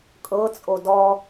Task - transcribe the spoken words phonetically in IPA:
kʼ ɤ t͡sʼ o d ɔ

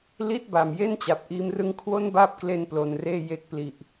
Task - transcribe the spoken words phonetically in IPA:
l i˥˩ t̚ b a˨˩ m j e˥˩ n t͡ɕ a˨˩ p̚ ʔ iː˦˥ m r ɯ˥˩ ŋ kʰ w o˥˩ n b aː˦˥ p̚ k l e˧ n p l o˨˩ n r eː˥˩ j e˦˥ k̚ p l i˨˩ ʔ

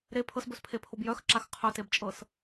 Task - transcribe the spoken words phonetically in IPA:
ɾ e pʰ ɤ s b ɵ s pʰ e pʰ o b j œ x ǁ a x qʰ œ t e b t͡ʃʼ ɤ s

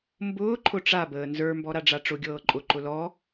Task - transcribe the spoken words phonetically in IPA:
m b ʊː ǃʰ ʊ ʈ͡ʂ a b əː n z ə˞ m b ɔ ɾ a ɖ͡ʐ a ʈ͡ʂ ʊ ɡʲ ɤː ǃʼ ʊ ǃ ʊ l ɔ

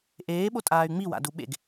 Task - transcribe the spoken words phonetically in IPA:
ʔ eː ɓ o tʼ aː y̯ ŋ͡m i w a̰ d u ɓ ḛ ɡ

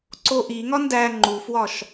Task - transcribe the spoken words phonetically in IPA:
ǀ o ʔ i ŋ ɒ n d æ ŋ͡ǃ u f w ɒ ʃ

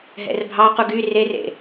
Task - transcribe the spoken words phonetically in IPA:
ɦ ɛ̰ r bʱ ɑ q u ɡ y r e r ḛ

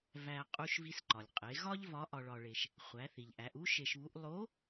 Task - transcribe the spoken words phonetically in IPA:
v æ˧ qʼ u˧ ʃ v i˧ s ǃ ɒ˩ lʲ qʼ e˩˧ ɣ ɒ˥ ʎ v ɒ˧˥ ʔ ɒ˧ ɭ ɒ˧ ɭ e˧ ʃ | χʷ æ˩˧ θ i˩ ʎ ʔ æ˩˧ ʔ u˥ ʃ e˧ ʃ β u˧˥ ʔ lˠ o˧˥

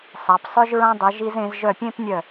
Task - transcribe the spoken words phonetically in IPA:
sˤ a˩˧ p sˤ œ˥ ʒ ɹ ã˥ dˤ œ˩˧ ʒ i˧ z ẽ˩˧ z ʒ œ˧˩ pʲ ẽ˥˧ p nʲ œ˧˩

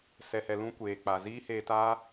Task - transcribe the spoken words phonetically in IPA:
s ɛ˧ h ɛ˧ l ũ˦ kʷ eː˨ k͡p a˨ z iː˦ h eː˧ t aː˦

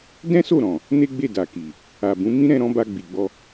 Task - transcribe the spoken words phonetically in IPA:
d ɛ̃˦ s o˦˨ ɾ ɔ̃˨ | n e˦ ɡ͡b e˦˨ d a˨ k i˨ | a˨ b ũ˨˦ m ĩ˦ ɾ ɛ̃˧ ɾ ɔ̃˧ b a˧ ɡ͡b i˨ ɡ͡b ɔ˧

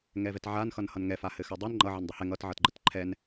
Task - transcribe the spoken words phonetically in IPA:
ŋ ɛ v ɛ t ʕ a n x ʌ n h ʌ n ŋ ɛ f a h ɘ x a dˤ i n ŋ͡ǃ ʌ ʕ e n dˤ ɘ h ɛ ŋ ʌ t ʕ ʌ t ɡ͡ǃ ə t ǃʰ ɛ n

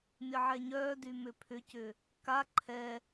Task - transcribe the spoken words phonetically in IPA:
mʲ ə ʕ ɛ ɲ œ d y m ʏ pʰ ʏ c ʏ | k a ǃʰ ɛ

